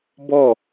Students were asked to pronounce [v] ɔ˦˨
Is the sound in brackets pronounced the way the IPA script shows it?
no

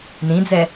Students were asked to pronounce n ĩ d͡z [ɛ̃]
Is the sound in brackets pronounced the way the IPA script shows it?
no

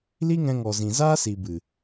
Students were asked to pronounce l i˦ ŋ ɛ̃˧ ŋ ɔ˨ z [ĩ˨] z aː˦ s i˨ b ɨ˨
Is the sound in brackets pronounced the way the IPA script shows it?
yes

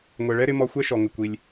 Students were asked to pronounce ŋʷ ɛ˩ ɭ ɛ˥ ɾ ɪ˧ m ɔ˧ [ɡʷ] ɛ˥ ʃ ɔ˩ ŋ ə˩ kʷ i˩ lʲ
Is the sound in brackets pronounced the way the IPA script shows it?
no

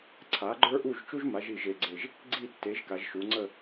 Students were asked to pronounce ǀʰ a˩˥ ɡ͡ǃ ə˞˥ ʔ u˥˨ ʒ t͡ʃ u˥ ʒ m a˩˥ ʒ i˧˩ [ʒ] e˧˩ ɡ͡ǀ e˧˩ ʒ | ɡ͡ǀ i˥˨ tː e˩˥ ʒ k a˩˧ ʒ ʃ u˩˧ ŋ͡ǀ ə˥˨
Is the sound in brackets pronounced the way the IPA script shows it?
yes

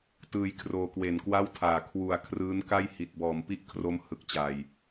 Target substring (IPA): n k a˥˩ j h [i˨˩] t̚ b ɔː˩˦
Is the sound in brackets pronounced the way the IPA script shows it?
yes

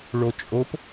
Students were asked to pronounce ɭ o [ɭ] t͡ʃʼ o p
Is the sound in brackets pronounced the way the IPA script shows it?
no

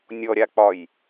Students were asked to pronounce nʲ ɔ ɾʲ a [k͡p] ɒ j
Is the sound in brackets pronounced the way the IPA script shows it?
yes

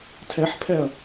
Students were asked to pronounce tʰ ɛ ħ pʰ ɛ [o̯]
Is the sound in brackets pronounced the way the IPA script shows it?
no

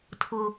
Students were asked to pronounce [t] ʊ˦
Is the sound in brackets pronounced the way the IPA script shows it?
no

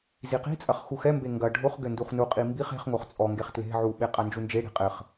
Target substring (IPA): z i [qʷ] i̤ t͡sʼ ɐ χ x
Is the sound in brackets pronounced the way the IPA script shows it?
no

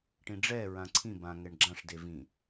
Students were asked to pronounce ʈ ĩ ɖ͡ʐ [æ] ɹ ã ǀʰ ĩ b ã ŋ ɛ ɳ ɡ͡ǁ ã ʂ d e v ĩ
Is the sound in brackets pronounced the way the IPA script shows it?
no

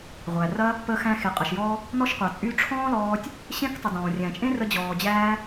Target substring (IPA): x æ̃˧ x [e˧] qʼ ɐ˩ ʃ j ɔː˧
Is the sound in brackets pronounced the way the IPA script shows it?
no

